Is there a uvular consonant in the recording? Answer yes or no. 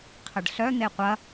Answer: yes